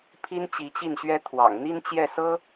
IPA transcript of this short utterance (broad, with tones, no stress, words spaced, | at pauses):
pʰi˥nt͡ɕi˧˥t͡ɕi˥˩nɕɥɛ˥ t̪ʰwɑ̰˨˩ŋ n̪i˥nt͡ɕjɛ˥˩sɤ˥